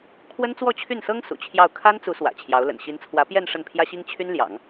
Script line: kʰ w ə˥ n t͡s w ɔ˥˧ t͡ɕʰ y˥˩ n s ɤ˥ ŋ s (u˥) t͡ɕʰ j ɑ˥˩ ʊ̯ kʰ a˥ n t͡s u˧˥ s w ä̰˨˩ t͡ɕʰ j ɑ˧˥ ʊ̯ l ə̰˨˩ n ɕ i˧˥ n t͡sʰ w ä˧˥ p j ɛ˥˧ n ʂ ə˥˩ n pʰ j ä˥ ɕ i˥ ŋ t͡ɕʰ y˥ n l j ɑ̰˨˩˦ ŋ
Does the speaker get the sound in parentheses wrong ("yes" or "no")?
yes